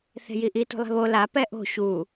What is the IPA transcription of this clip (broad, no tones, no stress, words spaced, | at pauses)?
θe̤jiʔi tṳlˠe̤βo la pɛʔo̤ ɕu